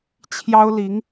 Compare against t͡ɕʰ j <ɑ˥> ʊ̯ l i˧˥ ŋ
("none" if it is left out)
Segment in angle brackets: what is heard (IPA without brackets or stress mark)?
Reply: ɑ˥